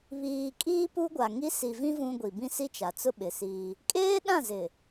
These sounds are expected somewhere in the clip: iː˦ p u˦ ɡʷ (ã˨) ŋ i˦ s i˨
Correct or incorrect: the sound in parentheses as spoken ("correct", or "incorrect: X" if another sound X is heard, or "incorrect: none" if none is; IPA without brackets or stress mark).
incorrect: a˨